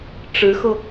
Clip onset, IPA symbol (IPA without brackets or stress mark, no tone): ʈ͡ʂ